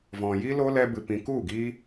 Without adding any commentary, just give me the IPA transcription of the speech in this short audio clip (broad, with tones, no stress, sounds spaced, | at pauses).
v ɔ̃˨ j i˦ l o˦ l ɛ˦ b ɨ˧ p ĩ˧ k u˦˨ ɡ iː˦